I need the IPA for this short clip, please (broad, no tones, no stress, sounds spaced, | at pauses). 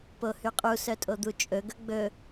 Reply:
p o h y qʼ u s œ tʼ o d̪ u t͡ʃʼ ɵ ɡ ɵ ɡ͡b ɵ